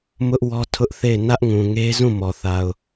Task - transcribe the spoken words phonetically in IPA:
m ʊ˦ ʔ w ɔ˦ tʰ ʊ˦ ʔ θ e˦˨ ɪ̯ n ä˦ ʔ ŋ ũ˨ ŋ e˦ z ũ˦˨ m ɔ˨ θ a˨ ʊ̯

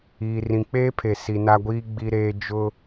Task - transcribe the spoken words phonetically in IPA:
iː˨ r ĩ˨ k͡p eː˦ pʰ e˨ s i˨ n a˦ ɡʷ iː˦ ɡ͡b i˦ ɾ eː˦ d͡ʒ ʊ˦

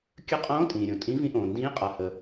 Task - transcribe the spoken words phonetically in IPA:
kʲ ə˧˥ qʼ õː˧˥ tʼ ĩː˩ ɾʲ õ˩ tʼ ĩ˧˥ v ĩ˧˥ ʔ õː˩ n d ĩː˧˥ qʼ a˩ h ə˩

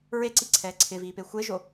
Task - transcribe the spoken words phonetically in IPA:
ɹ e ǀ i ǀʰ ɛː ǀʰ ɪ v iː p e xʷ e ʒ o

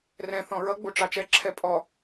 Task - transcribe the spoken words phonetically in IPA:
r ɛ̃ θ ɔ̃ ɹ ʌ ɡ͡b u ʈ͡ʂ ɑ t͡ʃ ɛ ǁʰ ɛ pʼ ɔ

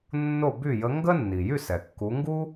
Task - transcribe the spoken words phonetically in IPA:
nː o˥˨ b y˥˨ j ə˧˥ ŋ ɡ ə˥ nː i˩ j y˥˨ s ɛ˩ kː u˩˧ ŋ ɡ u˥

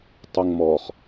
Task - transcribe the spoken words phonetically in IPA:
tˤ u ŋ m ɔ χ

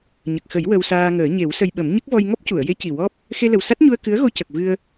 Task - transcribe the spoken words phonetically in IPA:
ɲ ə˨˩ k̚ x ə˨˩˦ j w ə˧ w s aː˧ ŋ əː˨˩˦ ɲ e˨˩˦ w s ə˧ j ɓ ə˨˩˦ m ɲ ə˦˥ k̚ v ɔ˧ j ŋ ɔ˦˥ p̚ c u˨˩˨ ə̯ j e˧˥ c i˨˩ w ɔ˦˥ p̚ | x e˧ l ə˨˩ w s a˦˥ t̚ ɲ u˧ ə̯ k ɨ˧˥ ə̯ ɣ o˧ c ə˨˩ k̚ v ɨ˧ ə̯

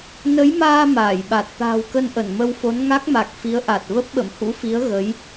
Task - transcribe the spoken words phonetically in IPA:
n ə˨˦ j m aː˧ m aː˧˩ j ɓ a˨˩ t̚ t̪ a̤ː˨˩ w k ə˧ n ʔ ə˧˩ n m ə˧ w f o˨˦ n ŋ a˦˥ k̚ m a˨˩ k̚ f i˨˦ ə̯ ʔ a˨˩ t̚ v ə˦˥ p̚ ɓ ə̰˧˨ m h ṵ˧˥ f i˨˦ ə̯ ɣ ə˨˦ j

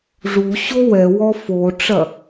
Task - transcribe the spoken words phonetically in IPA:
ʐ u ɕ o w ɛ w ɔ f o ʈ͡ʂ ɐ

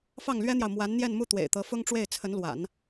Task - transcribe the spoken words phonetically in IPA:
f ɑ˥˩ ŋ l ɥ ɛ˥ n̪ j ɑ˨ ʊ̯ m w a˧˥ n n̪ j ɛ˥˧ n m u˥˩ t̪ w ḛ˨˩ ɪ̯ t̪ ɤ˧˥ f ʊ˥ ŋ ʈ͡ʂ w e˥˩ ɪ̯ t͡sʰ ə˧˥ n l w a̰˨˩˦ n

